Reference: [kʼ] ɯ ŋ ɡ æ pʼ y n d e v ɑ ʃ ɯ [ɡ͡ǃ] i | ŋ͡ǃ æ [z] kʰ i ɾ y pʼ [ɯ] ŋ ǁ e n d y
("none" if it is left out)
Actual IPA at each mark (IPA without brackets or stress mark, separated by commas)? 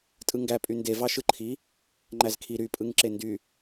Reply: tʼ, ǃʰ, z, ɯ